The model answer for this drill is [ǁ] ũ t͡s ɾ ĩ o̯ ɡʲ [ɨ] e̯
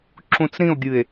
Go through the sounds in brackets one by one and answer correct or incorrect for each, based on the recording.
correct, correct

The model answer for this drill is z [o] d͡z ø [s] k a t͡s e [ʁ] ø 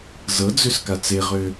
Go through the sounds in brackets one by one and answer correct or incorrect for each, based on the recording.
incorrect, correct, correct

